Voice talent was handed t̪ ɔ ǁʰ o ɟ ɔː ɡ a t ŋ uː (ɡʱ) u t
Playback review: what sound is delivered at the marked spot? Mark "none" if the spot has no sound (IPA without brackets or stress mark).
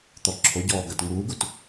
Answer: ɡ